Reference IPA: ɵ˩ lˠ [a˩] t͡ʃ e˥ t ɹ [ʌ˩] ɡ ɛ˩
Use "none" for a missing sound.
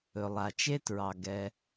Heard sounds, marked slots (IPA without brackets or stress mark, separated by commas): a˩, ɑ˩